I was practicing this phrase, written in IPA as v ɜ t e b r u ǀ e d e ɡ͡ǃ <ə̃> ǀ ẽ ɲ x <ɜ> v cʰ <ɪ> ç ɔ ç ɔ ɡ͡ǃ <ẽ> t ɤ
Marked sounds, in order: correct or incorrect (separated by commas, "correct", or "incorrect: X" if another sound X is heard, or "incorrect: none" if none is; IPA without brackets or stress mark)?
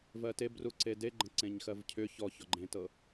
correct, correct, incorrect: ʏ, correct